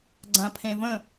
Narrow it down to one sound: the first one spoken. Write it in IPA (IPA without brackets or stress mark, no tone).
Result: ɡ͡ǀ